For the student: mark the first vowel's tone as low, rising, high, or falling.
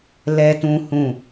high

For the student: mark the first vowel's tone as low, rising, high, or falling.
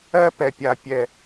high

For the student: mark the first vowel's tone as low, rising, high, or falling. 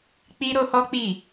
high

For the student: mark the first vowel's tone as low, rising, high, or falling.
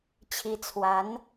rising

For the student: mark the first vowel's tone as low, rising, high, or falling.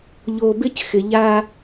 low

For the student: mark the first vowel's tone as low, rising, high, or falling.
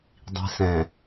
low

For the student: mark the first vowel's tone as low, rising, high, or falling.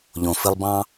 low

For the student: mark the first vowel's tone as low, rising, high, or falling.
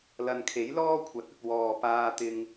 low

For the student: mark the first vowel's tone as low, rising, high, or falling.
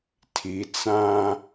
rising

